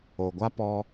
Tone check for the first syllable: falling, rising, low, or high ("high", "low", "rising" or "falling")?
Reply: low